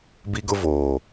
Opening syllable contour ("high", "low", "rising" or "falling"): high